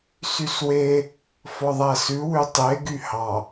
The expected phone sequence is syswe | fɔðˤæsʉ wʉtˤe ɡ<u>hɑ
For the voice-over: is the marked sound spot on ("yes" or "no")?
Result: no